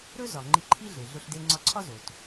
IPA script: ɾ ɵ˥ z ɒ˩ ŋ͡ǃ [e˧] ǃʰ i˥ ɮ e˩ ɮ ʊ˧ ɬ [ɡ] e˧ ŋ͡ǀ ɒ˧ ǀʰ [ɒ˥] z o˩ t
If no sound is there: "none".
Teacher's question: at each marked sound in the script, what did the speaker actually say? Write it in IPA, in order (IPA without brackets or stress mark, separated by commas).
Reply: i˧, d, ɒ˥